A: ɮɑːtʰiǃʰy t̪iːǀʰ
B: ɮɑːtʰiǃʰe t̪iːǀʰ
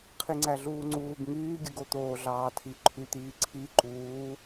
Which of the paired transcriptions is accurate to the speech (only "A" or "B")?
A